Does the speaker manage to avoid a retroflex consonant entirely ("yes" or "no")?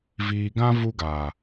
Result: yes